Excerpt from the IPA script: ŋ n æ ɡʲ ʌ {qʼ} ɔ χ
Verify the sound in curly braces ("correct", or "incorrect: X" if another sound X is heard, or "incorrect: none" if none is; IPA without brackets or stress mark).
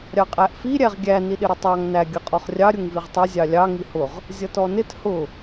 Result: correct